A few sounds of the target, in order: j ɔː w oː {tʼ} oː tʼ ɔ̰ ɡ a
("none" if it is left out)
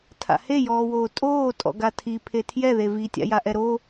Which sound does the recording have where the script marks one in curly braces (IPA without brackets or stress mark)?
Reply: tʼ